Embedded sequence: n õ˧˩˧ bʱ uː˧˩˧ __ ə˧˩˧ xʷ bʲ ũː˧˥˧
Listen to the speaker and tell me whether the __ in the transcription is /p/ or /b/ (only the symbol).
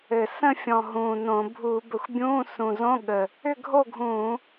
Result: b